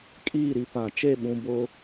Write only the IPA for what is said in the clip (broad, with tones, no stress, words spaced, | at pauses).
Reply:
kʼiː˦˨ ɾi˨pã˨ t͡ʃe˦˨ɓũ˨ bʊ˦